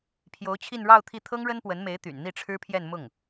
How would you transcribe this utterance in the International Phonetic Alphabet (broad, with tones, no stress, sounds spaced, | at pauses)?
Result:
pʰ j o˧˥ ʊ̯ t͡ɕʰ i˥˧ n ɻ ɑ˥˧ ʊ̯ t̪ʰ i˥˩ t̪ʰ ɤ˥ ŋ ɻ ə˥ n p w ə˧˥ n m e˧˥ ɪ̯ t̪ y̰˨˩ n n̪ i˥˩ ʈ͡ʂʰ ɻ̩˥ pʰ j ɛ˥˧ n m ʊ˥˩ ŋ